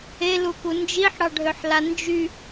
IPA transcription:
e l u k u n d͡ʒ i ħ ɽ ɑ ɖʱ ø ħ l a n d͡ʒ y

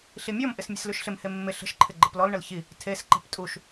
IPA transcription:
ɬ i mʲ ɔ m ʔ ɪ s mʲ ə̤ s l ʉ ʃ ɬ ɪ m h e mː ɪ ɬ ə̤ ʃ ǃʰ ɪ ɡ͡ǃ ə p l ɔ l ɳ ə l ç i | tʰ e s ǃ e̤ p tʼ u ʃ

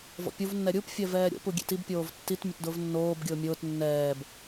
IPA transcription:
v ɔ̰ pʲ u v nː ɛ ɾʲ u p fʲ ɛ v ɛː ɾʲ o̰ p u ɡʲ ḛ t i b pʲ oː v tː i t mʲ ʊ t d ʊː v nː oː b ɡʲ ʊː mʲ ʊː t nː ɛː b

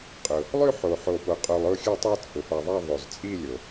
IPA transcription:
qʼ ʊ˩ | lˠ ʉ˦˨ ħ o˩ ħ o˩ p o˩ qʼ o˩ lˠ ʊ˦˨ xʲ ə˞˦˨ tˤ o˦˨ t͡sʼ ʊ˩ f a˩ ðˤ a˦˨ ðˤ o˩ z t͡sʼ i˦˨ lʲ o˩

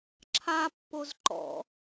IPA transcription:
ǁʰ a pː o z ǃ ɔ̰

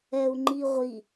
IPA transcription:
ɛ u̯ ŋ͡ǃ i ʁʷ i

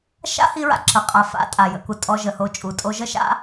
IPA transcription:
ʃ a̰˦ h i˧ ɹ a̰˨ ǁ ə˨ qʼ a˨ f a̰˧ tʼ a˨ j ə̰˧ k u˨ tʼ ɔ˧ ʒ ə˨ h o˧ t͡ʃʼ u˨ tʼ o˧ ʒ ə˦ ʃ a̰˦

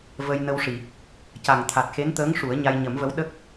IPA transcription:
v ə˧ j n ə˧ w ʂ i˨˩˨ | c a˨˩ ŋ t̪ʰ a˨˩ t̚ x e˧˥ n t̪ əː˧˥ ŋ ʂ u˨˩˦ ə̯ ɲ a˧ j ɲ ə˨˩˦ m v ə˧˥ w ɗ ə˦˥ k̚

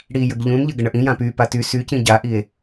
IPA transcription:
ɽ i j ə ɡ ʎ ũ n ʎ ə ɡ ə ɳ ə ʔ ĩ j ã p y p a t y s y c ĩ ɟ a ʔ i e̯

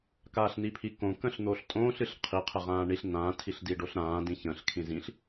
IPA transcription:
k aː ɬ n i pʰ i k õ k ə̃ ɬ n̪ o ɬ tʼ õː ɬ ɨ ɬ qʰ i qʰ ə ʁ ãː ɳ i ɬ n ã tʰ i ɬ d i ɖ o ɬ ɾ ãː d ĩ ç ə̃ ɬ kʰ ĩ z ĩ ɬ

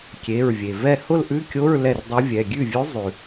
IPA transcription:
kʲ e˩˧˩ ɹ vʲ e˩ v ɛ˥˧ h ʊ˥˧ l ʔ ʉ˧˥˧ kʲ o˧˥˧ ɹ l ɛ˥˩ r dˤ u˧˥ vʲ ɛ˩˧˩ ɡʲ ʉ˥˩ vʲ ʉ˧˥ zˤ ʉ˩

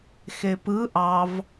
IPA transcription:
x e p ɯ ʔ ɑ v

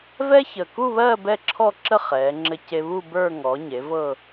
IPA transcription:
v ɛ˥ ç ə˨˩ k u˥˧ β ɜ˥˧ b ɛ˥˧ ǁʰ ɔ˥˧ ǁ ə˥˧ χ ɛː˩˥ ŋ͡ǁ ɘ˥ c e˥ β u˥˧ b ə˞˥˧ ŋ ɔ˩˥ ɲ e˩˥ v ɤ˥˧

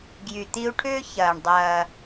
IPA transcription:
ɡ j y˩ t̪ i˧ u̯ ʈʰ ʏː˥ ç ɐː˩ ɳ dˤ ɐː˩

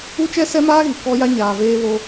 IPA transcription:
u˦ t͡ʃ ɛ˦ s ɛ˦ m aː˦ ɣ i˨ k ɔ˦ j a˦ ɲ aː˨ v eː˦ β o˦

